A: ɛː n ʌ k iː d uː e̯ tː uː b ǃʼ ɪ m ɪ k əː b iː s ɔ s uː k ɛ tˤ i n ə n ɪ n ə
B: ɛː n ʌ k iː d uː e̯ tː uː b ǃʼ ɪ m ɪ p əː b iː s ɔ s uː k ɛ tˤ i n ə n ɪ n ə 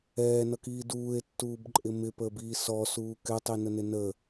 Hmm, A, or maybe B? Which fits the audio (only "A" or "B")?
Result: B